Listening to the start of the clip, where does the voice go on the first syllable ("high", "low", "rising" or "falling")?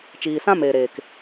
low